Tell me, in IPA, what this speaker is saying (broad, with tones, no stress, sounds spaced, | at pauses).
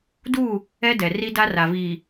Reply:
d u˦˨ | ɛ˦ d ɛ˨ r i˦ d a˦ r a˨ v iː˨